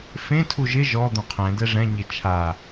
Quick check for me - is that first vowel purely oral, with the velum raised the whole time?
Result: no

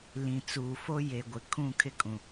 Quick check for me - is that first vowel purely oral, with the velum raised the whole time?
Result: no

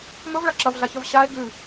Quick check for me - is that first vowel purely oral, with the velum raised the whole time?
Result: yes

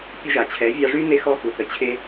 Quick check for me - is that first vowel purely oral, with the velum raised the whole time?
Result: yes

